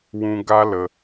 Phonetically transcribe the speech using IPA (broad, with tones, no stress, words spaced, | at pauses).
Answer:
wũ˦ ɡa˦lə˧